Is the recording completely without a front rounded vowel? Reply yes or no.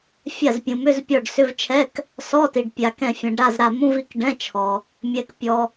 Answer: no